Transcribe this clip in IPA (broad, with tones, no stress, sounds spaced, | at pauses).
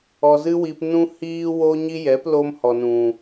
ɔ˧ z ɨ˦ w i˧ p n ũ˦ h iː˦ w o˦ ɲ i˦ j ɛ˨˦ p l o˦ m h ɔ˨ n ũ˨